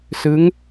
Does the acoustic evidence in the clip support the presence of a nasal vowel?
no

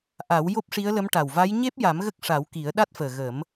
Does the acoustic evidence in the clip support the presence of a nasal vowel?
no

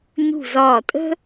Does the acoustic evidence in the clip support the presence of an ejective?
yes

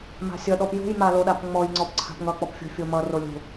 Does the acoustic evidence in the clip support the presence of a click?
yes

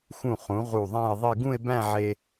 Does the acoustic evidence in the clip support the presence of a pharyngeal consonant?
yes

